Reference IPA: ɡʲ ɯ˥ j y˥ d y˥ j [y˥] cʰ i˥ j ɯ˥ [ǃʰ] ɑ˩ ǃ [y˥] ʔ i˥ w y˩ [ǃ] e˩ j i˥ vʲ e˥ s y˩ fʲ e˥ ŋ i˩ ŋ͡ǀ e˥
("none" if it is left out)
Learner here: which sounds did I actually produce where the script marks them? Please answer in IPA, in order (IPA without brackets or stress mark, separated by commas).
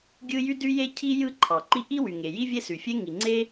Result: e˥, ǃʰ, i˥, ŋ